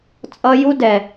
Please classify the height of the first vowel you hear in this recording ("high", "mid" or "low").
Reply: mid